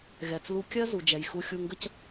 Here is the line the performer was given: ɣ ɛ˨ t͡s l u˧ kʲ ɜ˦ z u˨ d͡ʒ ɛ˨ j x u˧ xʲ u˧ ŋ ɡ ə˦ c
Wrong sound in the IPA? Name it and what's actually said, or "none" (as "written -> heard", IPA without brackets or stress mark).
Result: none